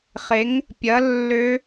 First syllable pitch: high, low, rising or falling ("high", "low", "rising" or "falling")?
rising